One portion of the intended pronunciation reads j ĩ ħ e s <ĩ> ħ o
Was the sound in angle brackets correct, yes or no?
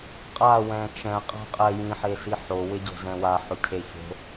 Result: no